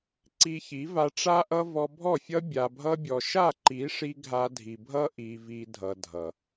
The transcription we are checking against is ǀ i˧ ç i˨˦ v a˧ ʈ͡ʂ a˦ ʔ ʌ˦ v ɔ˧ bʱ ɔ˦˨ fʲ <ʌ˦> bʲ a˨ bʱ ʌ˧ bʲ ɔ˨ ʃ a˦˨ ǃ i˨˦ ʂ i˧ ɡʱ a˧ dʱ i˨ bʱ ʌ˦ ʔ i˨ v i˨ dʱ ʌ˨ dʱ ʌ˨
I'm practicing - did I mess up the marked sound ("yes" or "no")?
no